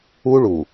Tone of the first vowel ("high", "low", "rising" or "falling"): high